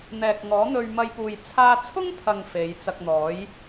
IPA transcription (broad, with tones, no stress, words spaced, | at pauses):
n̪ɛː˨k̚ ŋɔː˨˥n̪ɵ˧ɥmɐ˧jpuː˨j t͡sʰaː˧t͡sʰʊ˥ŋt̪ʰɐ˨ŋ fe˨˧jt͡sɐ˧k̚n̪ɔː˨˥j